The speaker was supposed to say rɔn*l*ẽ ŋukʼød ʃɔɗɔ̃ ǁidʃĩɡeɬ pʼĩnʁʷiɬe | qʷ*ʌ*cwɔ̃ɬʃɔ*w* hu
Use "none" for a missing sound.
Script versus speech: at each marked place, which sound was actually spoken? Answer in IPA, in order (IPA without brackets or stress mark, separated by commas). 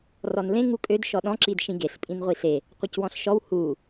l, ʌ, w